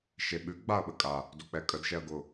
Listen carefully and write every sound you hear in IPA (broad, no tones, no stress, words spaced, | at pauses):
ʃeɓʉ ɡ͡baɐ̯ɓəkʼa | dok͡pɛkʼəd ʃɛɐ̯ɡʊ